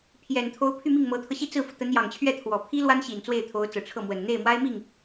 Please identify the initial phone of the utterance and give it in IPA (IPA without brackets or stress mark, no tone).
pʰ